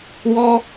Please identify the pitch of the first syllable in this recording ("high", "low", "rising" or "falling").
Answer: high